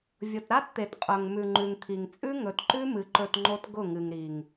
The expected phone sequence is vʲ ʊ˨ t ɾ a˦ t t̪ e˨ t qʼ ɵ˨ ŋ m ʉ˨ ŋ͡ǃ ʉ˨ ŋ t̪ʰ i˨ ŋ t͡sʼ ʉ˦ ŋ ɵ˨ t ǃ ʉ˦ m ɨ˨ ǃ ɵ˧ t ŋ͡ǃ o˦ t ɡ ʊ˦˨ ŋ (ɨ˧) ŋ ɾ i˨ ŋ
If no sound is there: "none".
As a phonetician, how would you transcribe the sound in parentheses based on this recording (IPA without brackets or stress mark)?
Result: ɨ˨